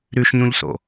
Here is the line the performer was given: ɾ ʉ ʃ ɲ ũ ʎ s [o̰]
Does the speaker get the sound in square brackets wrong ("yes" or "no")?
no